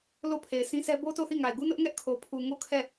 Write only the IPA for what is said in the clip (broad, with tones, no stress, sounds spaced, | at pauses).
l o˦˨ pʰ e˨ ɪ̯ s ĩ˦ sʰ ɛ˦ b o˦ t o˦˨ θ i˦˨ ŋ a˨ ɪ̯ ɡ u˦ n ʊ˦ ʔ ŋ ɛ˦ ʔ kʰ o˨ pʰ u˨ ŋ o˦˨ kʰ ɛ˦˨